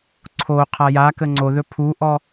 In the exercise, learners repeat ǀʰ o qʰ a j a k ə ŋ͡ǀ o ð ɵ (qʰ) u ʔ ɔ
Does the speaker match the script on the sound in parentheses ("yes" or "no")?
no